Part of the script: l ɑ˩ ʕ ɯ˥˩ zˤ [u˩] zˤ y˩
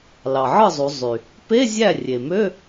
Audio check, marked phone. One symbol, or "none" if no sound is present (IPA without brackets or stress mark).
u˩˧